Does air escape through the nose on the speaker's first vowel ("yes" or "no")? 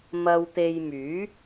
no